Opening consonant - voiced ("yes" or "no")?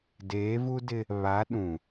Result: yes